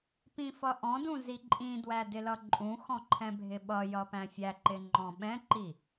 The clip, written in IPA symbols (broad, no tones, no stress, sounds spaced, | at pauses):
p ĩ f ʌ ʔ ɔ̃ d ũ z i ǃʼ ĩ d w æ d ɪ l ʌ ǃʼ ũ x ɔ̃ ǃʰ ɛ̃ bʱ ɪ ɓ ʌ j ʌ p æ̃ fʲ æ ǃ ɪ ŋ͡ǃ ɔ̃ ɓ ɛ̃ ǃ i